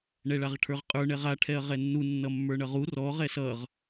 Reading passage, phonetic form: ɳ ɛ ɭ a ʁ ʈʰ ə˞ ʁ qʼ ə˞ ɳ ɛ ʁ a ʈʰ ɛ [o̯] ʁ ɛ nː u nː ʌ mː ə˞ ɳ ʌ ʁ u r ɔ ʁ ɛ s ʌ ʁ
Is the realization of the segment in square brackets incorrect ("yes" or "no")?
yes